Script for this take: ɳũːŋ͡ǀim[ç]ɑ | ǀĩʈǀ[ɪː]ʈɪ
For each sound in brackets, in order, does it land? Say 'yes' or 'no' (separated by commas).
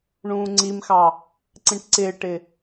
no, yes